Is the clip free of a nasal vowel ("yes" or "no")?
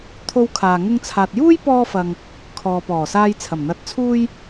yes